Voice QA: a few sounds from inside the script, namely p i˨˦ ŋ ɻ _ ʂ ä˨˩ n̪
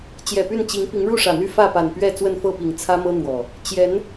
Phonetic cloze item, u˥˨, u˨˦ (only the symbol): u˥˨